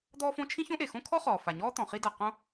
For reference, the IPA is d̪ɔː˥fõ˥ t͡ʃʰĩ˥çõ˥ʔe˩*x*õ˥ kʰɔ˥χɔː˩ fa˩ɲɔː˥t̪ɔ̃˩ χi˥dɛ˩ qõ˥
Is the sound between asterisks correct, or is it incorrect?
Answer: correct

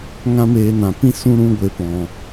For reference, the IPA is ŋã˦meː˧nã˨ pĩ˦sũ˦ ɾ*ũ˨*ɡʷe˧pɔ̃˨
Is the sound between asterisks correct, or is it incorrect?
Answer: incorrect: ũ˦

